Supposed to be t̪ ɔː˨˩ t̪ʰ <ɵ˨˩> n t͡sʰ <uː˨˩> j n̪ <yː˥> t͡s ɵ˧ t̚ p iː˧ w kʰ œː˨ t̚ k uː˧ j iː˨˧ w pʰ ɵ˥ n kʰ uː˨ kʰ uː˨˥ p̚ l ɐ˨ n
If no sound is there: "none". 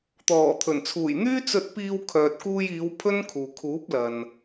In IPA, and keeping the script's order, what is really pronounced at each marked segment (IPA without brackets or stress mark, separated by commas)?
ɵ˨˩, uː˨˩, yː˥